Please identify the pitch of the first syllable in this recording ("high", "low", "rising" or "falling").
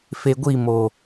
low